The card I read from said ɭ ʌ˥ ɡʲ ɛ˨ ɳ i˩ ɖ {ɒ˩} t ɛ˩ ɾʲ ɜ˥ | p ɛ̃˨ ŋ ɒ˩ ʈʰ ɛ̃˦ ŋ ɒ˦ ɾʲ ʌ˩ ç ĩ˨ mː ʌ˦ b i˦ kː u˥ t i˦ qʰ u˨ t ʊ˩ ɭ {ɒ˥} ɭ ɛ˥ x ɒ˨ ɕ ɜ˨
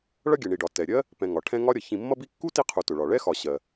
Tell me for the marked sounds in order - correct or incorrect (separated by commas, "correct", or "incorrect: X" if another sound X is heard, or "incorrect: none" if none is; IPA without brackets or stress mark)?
correct, incorrect: ɒ˩